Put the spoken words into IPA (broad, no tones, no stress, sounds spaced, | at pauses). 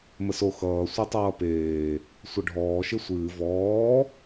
m ə s o x ʌː sʷ e tˤ ʌː p eː | sʷ ʌ ɖʱ ɔː ʃ ɪ sʷ ɨː v ɔː